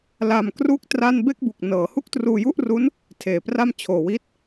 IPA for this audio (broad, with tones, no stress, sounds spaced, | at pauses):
l a˧ m k r u˦˥ k̚ t r a˥˩ n b e˥˩ k̚ b u˨˩ k̚ n ɤː˩˦ h u˥˩ k̚ t r uː˧ j u˥˩ ʔ r u˦˥ n | tʰ eː˨˩ p r a˥˩ m t͡ɕʰ oː˨˩ w i˦˥ t̚